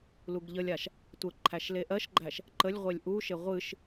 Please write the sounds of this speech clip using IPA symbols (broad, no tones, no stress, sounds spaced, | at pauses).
l u ɡ ʎ ə lʲ a ʃ | tʷ ə ǃʰ æ ʃ l e ʔ ɜ ʃ ɡ͡ǃ æ ʃ | ǃ ə lʲ ʁʷ e lʲ ʔ u ʃ e ʁʷ ɨ ʃ